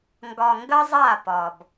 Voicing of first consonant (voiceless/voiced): voiced